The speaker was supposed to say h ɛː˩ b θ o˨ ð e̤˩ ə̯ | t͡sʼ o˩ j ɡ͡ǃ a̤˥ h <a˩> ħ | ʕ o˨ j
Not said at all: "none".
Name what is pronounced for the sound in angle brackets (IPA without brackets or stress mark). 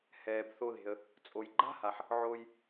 a˩